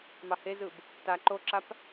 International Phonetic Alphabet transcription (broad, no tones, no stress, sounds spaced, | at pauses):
m ɑ h e z ɯ b | t a ǃ o ǁ a p